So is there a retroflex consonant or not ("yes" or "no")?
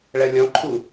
yes